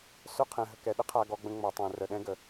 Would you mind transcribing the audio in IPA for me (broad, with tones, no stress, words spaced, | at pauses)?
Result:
sœ˦qʰɛ̃˨ɦə˨kɛ˨ ɗə˦qʰa˨ɡɔ˨ɡ͡bə̃˨ ŋ͡mɔ˨tˤɛ̃˨ rə˨ɗɛ̃˦ɡə˨